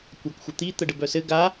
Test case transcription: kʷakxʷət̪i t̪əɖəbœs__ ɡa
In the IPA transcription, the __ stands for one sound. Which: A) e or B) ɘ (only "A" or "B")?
B